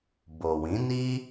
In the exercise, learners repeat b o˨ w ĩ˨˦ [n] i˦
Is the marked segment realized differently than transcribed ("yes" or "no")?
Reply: no